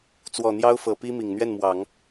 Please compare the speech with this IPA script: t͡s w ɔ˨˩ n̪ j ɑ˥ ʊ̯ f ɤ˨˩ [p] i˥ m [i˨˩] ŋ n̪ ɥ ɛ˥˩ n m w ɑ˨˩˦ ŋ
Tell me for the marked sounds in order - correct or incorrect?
correct, correct

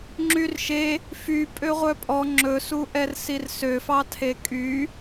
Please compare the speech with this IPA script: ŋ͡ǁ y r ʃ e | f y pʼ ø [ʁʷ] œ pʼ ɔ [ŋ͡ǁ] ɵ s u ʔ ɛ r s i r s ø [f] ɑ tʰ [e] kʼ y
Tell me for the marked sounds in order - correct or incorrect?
correct, correct, correct, correct

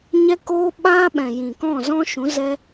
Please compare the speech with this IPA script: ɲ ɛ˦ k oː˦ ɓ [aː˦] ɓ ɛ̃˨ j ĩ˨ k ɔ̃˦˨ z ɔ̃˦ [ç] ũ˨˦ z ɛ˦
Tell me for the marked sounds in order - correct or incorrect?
correct, incorrect: ʃ

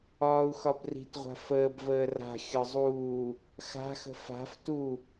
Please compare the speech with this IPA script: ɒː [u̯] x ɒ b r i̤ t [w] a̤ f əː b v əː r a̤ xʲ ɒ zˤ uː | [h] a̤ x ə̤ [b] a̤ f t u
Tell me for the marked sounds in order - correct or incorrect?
correct, incorrect: ʁʷ, incorrect: x, incorrect: f

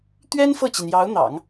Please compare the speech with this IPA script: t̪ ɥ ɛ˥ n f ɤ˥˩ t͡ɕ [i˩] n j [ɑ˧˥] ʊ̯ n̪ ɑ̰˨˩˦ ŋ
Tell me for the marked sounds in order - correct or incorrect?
correct, correct

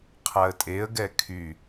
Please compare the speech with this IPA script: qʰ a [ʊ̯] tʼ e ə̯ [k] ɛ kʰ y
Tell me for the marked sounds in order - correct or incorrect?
incorrect: ə̯, incorrect: ɡ

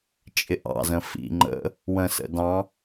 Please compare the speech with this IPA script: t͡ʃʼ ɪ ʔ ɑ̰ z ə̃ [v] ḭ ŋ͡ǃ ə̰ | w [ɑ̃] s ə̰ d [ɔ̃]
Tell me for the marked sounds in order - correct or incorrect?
incorrect: f, incorrect: ə̃, incorrect: ɑ̃

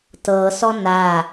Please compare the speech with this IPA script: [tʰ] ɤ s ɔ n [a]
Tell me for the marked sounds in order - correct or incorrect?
incorrect: t, correct

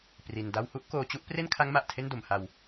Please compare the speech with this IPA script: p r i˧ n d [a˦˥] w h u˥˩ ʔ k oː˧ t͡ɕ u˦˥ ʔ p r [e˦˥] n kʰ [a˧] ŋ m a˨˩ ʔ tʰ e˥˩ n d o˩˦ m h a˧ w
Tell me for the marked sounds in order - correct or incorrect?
incorrect: a˥˩, incorrect: e˥˩, incorrect: a˦˥

